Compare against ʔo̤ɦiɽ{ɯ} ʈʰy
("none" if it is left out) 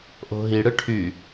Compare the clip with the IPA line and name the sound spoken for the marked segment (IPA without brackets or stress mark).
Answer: ɯ